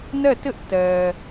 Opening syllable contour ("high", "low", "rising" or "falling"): falling